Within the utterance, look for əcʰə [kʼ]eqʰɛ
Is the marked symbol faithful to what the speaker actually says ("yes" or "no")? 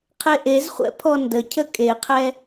yes